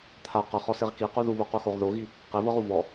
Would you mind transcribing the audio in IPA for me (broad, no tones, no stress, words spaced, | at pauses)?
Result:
t̪ʰa qɤχɔseʁ kiqu ðuβoquxoʁ ðoɣi | qevɤʁu vɔ